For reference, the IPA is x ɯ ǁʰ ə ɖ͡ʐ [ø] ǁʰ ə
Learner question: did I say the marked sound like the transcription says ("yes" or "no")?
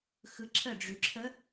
no